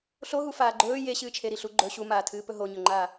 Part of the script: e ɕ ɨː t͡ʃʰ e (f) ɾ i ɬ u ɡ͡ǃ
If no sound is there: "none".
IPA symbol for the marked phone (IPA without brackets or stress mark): none